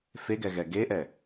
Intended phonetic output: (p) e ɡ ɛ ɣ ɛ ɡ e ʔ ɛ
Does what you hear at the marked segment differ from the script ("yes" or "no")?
yes